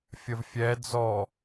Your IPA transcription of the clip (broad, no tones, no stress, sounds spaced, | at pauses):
fʲ ə v fʲ ɛ d͡z ɔ